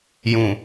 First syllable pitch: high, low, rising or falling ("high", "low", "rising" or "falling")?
low